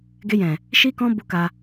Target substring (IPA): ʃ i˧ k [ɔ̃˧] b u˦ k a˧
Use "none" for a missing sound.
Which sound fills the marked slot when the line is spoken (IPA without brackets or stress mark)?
ɔ̃˧